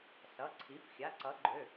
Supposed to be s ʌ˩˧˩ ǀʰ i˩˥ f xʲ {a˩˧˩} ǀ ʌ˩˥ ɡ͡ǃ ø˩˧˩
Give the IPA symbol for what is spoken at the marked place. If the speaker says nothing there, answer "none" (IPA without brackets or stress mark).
a˩˧˩